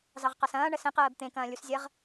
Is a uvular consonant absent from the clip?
no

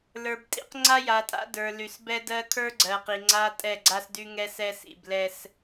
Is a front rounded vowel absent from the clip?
no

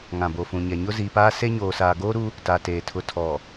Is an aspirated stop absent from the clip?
no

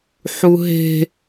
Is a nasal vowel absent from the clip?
yes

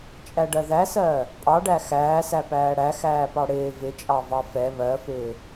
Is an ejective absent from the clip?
no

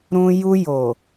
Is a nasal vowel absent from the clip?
no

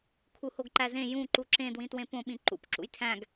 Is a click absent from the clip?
no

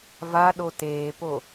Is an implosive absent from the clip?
no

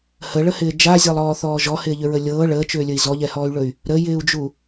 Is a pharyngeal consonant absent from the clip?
yes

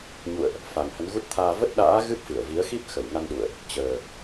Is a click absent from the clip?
yes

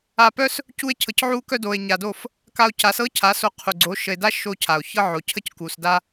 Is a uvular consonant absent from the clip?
no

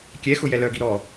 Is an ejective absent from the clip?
yes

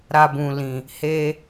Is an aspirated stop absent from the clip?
yes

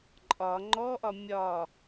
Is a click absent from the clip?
no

